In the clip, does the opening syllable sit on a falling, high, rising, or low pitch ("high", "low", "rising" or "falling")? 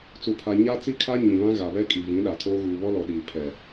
low